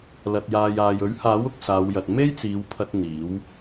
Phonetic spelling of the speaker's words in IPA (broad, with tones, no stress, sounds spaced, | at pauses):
l ɐ˨ t̚ j aː˨ j aː˨ j ɵ˨˥ ɥ h aː˨˥ w ʊ˨ k̚ s aː˨˧ w j ɐ˨ t̚ m e˥ j t͡s iː˨˧ w pʰ ɐ˧ t̚ n̪ iː˨˥ w